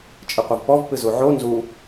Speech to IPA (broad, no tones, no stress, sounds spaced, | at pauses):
t͡ʃʼ ɪ qʷ ʌ v p ɔ v p ɨ z u ʕ o n z u